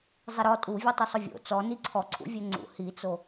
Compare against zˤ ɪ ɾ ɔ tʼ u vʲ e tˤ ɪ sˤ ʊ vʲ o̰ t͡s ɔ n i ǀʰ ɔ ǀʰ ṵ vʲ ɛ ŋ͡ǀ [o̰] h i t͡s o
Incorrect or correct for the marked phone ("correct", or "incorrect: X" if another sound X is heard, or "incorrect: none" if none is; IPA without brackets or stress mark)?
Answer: incorrect: ṵ